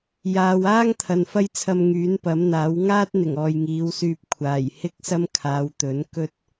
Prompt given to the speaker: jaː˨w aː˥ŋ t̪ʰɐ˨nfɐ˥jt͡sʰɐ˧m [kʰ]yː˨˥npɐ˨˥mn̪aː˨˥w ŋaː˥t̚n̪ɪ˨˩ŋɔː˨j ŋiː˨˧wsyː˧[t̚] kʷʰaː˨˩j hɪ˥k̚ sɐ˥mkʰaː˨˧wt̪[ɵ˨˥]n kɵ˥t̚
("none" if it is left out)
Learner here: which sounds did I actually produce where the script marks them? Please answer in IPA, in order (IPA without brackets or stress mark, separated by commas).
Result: ŋ, p̚, ɵ˨˥